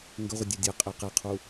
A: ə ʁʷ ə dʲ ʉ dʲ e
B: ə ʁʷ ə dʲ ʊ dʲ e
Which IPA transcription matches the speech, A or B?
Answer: A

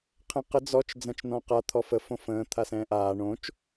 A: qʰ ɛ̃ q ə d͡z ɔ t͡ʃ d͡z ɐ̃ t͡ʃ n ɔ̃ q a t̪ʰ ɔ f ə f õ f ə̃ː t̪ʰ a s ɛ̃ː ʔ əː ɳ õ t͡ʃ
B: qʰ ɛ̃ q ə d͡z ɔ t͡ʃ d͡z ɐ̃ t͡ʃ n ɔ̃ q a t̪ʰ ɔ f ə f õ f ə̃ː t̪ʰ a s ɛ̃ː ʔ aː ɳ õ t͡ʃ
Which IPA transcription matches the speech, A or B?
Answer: B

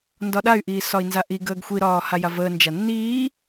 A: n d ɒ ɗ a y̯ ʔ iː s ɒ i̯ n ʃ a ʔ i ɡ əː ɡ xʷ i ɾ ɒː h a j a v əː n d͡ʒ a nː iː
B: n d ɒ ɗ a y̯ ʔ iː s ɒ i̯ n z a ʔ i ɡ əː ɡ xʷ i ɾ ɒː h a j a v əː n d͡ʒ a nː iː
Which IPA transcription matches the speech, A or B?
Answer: B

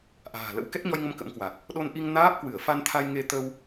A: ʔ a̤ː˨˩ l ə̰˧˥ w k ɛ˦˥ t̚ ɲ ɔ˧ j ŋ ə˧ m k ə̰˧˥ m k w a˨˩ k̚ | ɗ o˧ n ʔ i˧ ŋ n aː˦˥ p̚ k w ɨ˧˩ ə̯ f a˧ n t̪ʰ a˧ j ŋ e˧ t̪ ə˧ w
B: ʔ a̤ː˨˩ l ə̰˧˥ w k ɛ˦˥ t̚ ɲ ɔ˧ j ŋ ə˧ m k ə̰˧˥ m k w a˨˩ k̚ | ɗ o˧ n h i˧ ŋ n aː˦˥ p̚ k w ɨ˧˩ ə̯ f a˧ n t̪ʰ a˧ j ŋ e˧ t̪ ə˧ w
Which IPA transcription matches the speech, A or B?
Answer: A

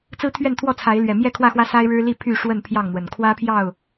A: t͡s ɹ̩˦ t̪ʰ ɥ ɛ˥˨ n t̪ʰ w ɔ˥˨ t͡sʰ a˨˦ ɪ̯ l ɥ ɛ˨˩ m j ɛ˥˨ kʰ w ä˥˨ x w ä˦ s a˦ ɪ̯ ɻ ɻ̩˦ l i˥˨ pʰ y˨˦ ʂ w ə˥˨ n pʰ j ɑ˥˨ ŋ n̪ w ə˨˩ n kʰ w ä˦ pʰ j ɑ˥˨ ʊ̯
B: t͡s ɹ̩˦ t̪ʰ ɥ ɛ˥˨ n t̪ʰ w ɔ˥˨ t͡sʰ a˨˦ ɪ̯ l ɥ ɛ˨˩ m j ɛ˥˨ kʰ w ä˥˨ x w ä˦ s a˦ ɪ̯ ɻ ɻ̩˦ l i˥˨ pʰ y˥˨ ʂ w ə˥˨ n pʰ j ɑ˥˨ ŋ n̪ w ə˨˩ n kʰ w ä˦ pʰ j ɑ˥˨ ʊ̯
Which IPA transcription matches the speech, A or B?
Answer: B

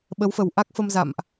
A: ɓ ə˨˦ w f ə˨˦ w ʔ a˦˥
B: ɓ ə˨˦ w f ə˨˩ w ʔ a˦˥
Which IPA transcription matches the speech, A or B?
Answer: B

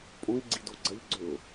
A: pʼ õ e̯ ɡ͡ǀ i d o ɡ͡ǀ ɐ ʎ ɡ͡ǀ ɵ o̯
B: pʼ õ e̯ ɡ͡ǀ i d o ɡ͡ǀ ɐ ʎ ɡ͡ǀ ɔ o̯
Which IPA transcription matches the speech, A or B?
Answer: A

